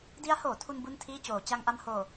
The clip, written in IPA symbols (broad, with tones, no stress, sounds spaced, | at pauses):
d i˦˥ a̯ h oː˩˦ tʰ u˧ n b u˥˩ n tʰ iː˥˩ t͡ɕ oː˩˦ t͡ɕ a˧ ŋ ʔ a˧ m h oː˨˩